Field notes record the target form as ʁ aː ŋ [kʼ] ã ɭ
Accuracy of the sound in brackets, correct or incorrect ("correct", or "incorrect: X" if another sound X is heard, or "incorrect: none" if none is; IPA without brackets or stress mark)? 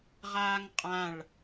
incorrect: qʼ